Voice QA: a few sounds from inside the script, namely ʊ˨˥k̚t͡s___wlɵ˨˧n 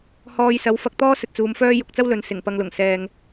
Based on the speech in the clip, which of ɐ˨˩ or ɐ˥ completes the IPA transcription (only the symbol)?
ɐ˥